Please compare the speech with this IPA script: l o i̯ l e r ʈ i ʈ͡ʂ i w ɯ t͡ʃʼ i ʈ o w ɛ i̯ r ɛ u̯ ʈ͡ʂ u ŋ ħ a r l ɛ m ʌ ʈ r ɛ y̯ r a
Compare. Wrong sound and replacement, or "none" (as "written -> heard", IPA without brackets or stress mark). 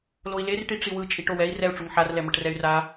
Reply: none